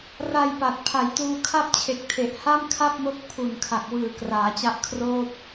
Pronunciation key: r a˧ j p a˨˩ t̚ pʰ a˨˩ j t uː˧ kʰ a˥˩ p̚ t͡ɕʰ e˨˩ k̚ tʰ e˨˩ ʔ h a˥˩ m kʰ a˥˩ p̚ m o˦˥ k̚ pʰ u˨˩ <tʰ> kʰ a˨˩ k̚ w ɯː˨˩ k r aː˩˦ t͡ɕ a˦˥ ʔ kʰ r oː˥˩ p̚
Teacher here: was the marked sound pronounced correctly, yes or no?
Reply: no